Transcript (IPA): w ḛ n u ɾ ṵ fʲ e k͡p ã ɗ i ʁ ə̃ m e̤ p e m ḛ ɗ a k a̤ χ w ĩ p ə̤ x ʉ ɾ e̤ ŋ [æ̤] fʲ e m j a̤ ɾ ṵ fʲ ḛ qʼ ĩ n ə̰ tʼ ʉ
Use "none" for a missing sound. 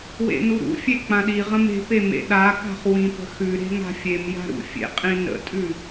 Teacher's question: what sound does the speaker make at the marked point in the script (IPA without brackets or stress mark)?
a̤